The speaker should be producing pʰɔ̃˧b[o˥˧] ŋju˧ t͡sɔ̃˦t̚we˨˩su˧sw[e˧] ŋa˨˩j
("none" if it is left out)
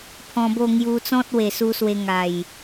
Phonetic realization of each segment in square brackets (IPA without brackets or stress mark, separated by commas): o˥˧, e˧